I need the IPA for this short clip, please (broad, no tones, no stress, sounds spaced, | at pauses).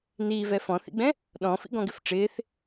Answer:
n iː v ɛ f ɔ̃ θ ḭ ɡ͡b ɛ̃ | ɗ ɔ̃ f ḭ ɡ ɔ̃ ɡ ɪ f ʈ͡ʂ ɪː θ